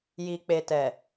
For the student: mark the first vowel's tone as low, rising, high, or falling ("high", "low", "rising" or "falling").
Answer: low